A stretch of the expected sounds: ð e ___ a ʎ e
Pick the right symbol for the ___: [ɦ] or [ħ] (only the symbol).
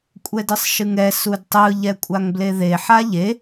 ħ